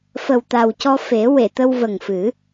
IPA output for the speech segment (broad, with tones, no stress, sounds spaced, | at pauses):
f ə˨˩ w t̪ a˨˩ w c ɔ˧ f e˨˩˦ w e˨˩˨ t̪ ə˧ w v ə˨˩ ŋ f ɨ˨˩˦